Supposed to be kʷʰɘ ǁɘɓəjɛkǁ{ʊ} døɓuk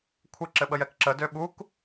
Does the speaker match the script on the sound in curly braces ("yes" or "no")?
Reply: no